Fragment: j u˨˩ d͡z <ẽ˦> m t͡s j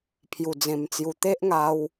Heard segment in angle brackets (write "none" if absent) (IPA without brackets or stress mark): ẽ˨˩